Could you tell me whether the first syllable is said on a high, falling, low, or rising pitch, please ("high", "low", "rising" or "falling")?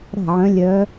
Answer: falling